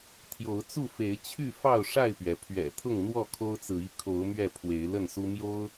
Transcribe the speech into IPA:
t̪ʰ j o˨˦ ʊ̯ t͡s u˥˨ f e˨˦ ɪ̯ t͡ɕʰ y˥˨ f ɑ˥˨ ʊ̯ ʂ a˥˨ ɪ̯ p ɥ ɛ˩ pʰ ɥ ɛ̰˨˩ t̪ʰ ʊ˥˨ ŋ n̪ w ɔ˥˨ kʰ o˦ ʊ̯ t͡s ɹ̩˨ i˥˨ kʰ o˨˦ ʊ̯ m ɥ ɛ˥˨ pʰ w e˨˦ ɪ̯ l ə˥˨ n s u˦ m j o˦ ʊ̯

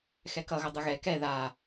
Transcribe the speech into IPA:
x ɛ k ʌ ɣ ʌ dˤ ɯ ɣ ɛ k ɛ ð a

